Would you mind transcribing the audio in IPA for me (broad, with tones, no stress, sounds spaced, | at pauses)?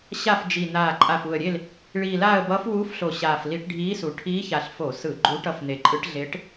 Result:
ɕ a˦˨ f d͡ʒ i˨˩ n̪ aː˨˩ ǃʼ a˨˩ f u˨˩ ə̯ ɾʲ e˦˨ l | ɭ iː˨˩ l aː˦˨ ə̯ b ʌː˧˥ f w uː˧˥ f ɬ o˨˩ ɕ aː˨˩ f l i˧˩˧ ʈ ɖʱ iː˧˥ s u˨˩ ʈʰ iː˧˥ ç a˨˩ ɬ f o˧˩˧ s ɯ˧˩˧ ɡ͡ǃ u˧˥ ʈ ʌ˦˨ f n̪ e˨˩ ǃʼ ɯ˧˥ ʈ ɮ e˧˥ ʈ